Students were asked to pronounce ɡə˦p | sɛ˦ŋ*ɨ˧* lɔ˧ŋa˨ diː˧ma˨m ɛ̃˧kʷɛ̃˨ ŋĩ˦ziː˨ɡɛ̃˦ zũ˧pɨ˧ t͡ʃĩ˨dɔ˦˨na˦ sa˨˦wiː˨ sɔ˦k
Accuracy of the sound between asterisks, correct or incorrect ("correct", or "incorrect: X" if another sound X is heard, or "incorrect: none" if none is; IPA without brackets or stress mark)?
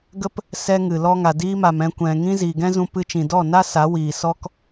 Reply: incorrect: ɨ˨